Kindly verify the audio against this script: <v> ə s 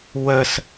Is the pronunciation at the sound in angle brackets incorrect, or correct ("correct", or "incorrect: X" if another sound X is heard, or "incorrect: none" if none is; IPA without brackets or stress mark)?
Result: incorrect: w